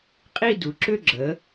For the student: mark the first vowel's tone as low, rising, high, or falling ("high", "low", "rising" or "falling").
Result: falling